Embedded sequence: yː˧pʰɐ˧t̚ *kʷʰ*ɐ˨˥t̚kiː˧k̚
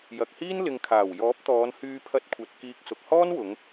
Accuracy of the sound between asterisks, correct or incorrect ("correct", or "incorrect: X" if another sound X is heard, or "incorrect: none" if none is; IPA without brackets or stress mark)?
correct